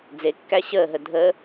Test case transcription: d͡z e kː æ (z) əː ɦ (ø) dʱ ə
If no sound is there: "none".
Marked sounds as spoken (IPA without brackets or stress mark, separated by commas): ɕ, ə